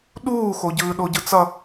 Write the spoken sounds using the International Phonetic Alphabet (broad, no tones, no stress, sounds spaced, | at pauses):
ɗ uː x o ɟ ɯː ɗ o ɟ ɯ t͡s ʌ